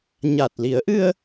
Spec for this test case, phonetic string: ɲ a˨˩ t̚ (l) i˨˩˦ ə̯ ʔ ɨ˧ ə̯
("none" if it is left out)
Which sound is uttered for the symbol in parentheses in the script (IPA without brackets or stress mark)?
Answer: l